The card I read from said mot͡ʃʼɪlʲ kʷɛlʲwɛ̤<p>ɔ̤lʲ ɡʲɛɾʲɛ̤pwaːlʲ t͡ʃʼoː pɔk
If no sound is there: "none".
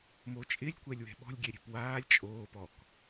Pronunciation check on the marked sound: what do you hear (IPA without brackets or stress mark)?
ɓ